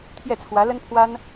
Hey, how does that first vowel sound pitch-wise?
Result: falling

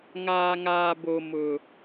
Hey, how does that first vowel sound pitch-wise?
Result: low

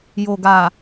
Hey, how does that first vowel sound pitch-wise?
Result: low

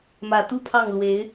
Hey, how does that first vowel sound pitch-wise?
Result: low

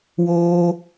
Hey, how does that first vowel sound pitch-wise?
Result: high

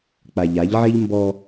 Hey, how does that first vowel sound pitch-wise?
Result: low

